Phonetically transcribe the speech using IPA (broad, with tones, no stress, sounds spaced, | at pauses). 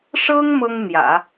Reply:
ʂ ɤ˥ ŋ m ɤ˥ ŋ n̪ j ä̰˨˩˦